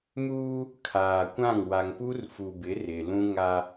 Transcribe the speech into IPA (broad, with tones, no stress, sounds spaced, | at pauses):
m uː˦ | kʰ aː˨ kʷ ã˦˨ ŋ w a˨ ŋ p u˦ r f u˨ b ɪ˨˦ r ɪ˨ l ũ˦ ŋ a˦